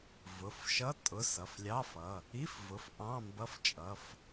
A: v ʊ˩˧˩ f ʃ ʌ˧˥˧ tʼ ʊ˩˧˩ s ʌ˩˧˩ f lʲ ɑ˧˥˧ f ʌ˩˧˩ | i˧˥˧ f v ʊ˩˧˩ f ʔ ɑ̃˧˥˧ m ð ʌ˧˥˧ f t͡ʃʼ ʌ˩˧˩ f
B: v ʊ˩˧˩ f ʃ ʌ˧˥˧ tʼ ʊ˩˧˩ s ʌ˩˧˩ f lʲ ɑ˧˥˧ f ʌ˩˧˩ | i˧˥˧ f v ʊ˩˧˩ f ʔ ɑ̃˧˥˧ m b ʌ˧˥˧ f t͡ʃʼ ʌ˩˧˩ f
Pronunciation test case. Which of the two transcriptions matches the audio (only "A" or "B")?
B